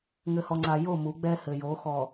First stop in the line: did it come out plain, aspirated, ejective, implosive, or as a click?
click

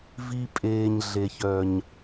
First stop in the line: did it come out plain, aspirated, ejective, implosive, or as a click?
ejective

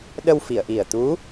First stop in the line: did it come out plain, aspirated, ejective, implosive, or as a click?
implosive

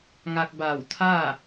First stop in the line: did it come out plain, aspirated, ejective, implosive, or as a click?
plain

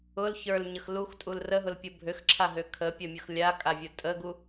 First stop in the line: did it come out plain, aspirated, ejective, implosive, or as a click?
ejective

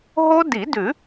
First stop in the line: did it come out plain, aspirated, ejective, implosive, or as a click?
plain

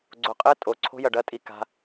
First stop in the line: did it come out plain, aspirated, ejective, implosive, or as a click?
click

